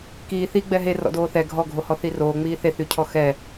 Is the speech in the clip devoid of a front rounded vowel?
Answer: no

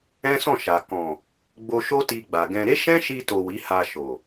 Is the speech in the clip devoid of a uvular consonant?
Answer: yes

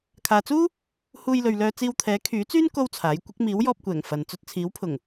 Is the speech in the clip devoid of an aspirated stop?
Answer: no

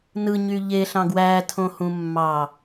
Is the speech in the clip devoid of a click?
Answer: yes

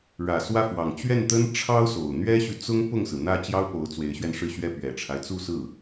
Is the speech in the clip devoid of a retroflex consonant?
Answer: no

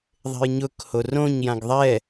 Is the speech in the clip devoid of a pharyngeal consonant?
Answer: yes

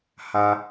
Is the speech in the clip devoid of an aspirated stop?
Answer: yes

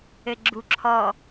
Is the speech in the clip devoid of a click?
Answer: no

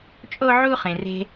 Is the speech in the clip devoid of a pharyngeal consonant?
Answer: no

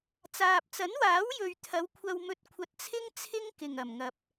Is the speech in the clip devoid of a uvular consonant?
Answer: yes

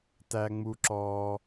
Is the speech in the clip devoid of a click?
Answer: no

